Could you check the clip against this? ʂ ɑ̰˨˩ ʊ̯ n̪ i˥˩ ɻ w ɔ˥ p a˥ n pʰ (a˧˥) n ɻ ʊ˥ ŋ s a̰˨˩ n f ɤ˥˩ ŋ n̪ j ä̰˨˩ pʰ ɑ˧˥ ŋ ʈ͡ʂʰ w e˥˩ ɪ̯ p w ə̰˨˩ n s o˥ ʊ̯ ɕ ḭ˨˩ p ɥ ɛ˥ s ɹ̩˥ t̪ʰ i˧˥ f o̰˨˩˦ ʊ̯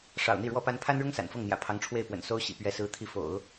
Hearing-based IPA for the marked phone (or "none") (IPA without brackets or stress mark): a˥